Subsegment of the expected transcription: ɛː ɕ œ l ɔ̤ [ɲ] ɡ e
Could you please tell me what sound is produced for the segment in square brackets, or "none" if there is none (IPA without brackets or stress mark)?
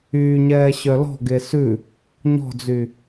none